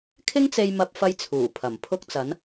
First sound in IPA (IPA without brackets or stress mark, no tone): kʰ